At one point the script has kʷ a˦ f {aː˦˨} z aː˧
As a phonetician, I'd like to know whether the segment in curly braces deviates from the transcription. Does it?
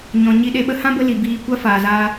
yes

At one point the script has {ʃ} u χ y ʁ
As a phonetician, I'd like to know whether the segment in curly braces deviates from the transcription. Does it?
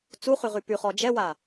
yes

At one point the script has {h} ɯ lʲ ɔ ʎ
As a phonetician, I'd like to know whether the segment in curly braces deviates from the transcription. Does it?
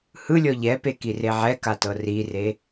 no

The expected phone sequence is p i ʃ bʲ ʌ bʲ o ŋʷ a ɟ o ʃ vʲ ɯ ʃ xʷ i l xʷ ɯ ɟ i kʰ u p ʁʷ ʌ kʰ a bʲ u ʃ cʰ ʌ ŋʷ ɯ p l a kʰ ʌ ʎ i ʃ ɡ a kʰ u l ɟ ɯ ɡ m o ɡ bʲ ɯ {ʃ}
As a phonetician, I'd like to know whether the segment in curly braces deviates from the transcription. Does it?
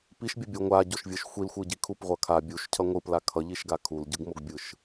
no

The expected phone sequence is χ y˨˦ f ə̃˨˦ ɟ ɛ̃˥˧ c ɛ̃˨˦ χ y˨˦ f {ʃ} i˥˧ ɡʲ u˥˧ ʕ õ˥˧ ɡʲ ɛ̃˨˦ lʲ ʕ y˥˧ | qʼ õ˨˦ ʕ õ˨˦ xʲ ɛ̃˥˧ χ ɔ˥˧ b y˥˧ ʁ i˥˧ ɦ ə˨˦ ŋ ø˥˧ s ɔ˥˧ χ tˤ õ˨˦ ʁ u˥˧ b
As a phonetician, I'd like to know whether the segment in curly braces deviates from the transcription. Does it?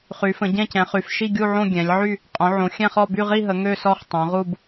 no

